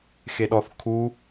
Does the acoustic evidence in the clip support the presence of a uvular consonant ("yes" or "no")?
no